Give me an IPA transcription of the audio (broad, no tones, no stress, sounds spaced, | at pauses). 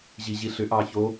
ʑ i ʑ i ɬ ʏ ʔ ɑ ç o